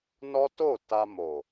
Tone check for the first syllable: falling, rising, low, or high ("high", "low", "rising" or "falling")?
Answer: high